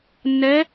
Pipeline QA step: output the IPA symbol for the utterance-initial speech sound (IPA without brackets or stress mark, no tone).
nː